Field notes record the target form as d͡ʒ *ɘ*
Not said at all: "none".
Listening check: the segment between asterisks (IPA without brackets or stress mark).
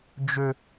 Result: ø